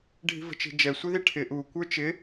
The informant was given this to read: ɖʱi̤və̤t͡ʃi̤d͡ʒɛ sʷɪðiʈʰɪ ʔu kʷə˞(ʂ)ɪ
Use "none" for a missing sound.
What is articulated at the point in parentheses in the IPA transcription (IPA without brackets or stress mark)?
t͡ʃ